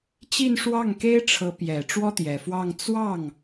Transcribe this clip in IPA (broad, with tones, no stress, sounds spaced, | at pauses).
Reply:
t͡ɕ i˥˧ n ʂ w ɑ˥˩ ŋ k e˥ ɪ̯ ʈ͡ʂʰ ɤ˧˥ p j ɛ˨˩ ʈ͡ʂ w ɔ˥ t̪ j ɛ˨˩ f w ɑ˥˧ ŋ t͡s w ɑ˥˩ ŋ